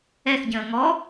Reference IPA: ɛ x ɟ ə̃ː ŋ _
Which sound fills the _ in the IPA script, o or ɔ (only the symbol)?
ɔ